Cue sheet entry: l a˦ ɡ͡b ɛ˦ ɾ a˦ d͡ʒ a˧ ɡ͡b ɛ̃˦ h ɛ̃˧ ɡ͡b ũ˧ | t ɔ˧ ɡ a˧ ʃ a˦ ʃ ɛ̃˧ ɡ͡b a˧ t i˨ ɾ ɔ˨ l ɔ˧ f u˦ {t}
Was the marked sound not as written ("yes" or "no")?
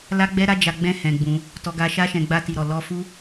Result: yes